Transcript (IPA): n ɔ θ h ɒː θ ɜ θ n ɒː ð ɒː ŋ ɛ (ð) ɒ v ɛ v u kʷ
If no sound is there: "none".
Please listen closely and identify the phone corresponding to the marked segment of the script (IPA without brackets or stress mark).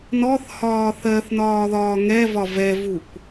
v